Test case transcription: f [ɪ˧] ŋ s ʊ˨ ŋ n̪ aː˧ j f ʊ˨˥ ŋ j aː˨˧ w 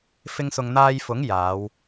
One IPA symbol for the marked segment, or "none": ɪ˧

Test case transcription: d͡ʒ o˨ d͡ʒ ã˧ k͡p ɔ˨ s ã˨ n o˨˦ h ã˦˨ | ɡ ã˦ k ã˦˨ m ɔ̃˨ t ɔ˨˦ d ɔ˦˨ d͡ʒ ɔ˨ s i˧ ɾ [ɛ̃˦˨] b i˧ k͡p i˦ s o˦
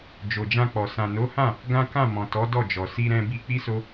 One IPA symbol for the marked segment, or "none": ɛ̃˧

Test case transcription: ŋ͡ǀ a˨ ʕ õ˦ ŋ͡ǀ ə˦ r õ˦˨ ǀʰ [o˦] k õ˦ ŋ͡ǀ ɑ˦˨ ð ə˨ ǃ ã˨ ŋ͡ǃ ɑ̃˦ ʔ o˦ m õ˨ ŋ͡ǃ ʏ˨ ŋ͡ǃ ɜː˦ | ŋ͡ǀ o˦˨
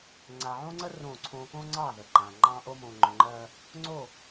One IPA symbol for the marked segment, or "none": õ˦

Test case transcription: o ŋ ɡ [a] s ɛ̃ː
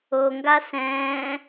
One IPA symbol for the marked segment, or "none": a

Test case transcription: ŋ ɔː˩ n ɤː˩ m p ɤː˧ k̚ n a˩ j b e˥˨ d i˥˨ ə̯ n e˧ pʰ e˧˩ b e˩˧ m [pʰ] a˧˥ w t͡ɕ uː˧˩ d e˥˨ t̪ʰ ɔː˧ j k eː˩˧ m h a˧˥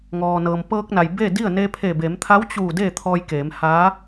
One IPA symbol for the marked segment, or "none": t̪ʰ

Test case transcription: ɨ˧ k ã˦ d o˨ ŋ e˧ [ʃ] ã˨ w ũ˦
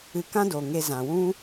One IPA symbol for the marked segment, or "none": z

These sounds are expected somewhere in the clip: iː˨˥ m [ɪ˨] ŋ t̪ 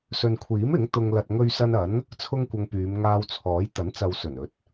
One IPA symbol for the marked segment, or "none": ɪ˨˥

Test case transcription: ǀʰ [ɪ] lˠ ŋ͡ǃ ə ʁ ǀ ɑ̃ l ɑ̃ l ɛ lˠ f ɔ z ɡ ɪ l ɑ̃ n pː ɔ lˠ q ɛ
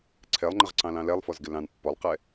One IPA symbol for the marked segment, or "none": ɛ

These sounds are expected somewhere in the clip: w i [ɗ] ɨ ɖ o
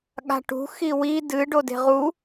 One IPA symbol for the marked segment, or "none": d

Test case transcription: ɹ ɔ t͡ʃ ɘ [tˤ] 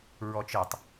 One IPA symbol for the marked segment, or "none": tˤ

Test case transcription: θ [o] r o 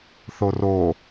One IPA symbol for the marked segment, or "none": o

